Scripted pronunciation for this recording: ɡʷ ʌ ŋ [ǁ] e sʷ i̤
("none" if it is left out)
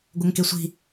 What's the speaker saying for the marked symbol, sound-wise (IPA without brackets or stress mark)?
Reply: k